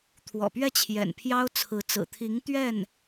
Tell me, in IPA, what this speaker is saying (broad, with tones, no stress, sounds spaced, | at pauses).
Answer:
t̪ʰ w ɔ̰˨˩ p ɥ ɛ˥˩ t͡ɕʰ j ɛ̰˨˩ n pʰ j ɑ˥ ʊ̯ t͡sʰ ɹ̩˧˥ t͡s ɹ̩˨˩ t̪ʰ i˧˥ ŋ t̪ ɥ ɛ˥˩ n